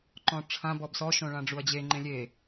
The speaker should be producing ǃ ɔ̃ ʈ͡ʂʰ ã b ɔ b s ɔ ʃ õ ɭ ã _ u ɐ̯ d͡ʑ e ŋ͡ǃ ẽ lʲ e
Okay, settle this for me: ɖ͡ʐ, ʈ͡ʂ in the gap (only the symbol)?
ɖ͡ʐ